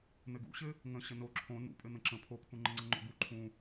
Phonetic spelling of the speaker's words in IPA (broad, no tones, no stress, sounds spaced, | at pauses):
n̪ ɘ ɡ ṵ ɕ ɘ | ŋ ə̃ ɕ ə n o ǁʰ õ n ṵ pʼ ɘ n̪ ə̃ ǁ ə̃ pʰ o kʰ ũ ŋ͡ǃ ə̃ ŋ͡ǀ ə̃ ŋ͡ǃ o̰ ɡ u ǃʰ ũ